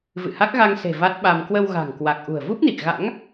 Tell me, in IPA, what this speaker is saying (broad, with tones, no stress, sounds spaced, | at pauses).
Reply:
v ɨ̰˧˨ h a˦˥ k̚ ɣ a˧ ŋ s e̤˨˩ v a˦˥ t̚ ɓ a˧ m k w ə˧ w ɣ a̤˨˩ ŋ k w a˨˩ k̚ ʔ ṳ˨˩ ə̯ v u˦˥ p̚ n i˨˩ k̚ ɣ a̰˧˥ ŋ